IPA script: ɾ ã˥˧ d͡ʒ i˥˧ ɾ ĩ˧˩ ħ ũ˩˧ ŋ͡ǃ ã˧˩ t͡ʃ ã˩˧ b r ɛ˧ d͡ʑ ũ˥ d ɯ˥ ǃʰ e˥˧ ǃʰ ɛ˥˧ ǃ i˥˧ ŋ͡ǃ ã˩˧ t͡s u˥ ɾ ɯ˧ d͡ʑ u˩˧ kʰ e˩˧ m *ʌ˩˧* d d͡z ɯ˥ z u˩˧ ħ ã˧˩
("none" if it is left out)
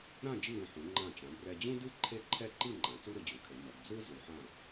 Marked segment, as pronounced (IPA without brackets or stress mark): ʌ˩˧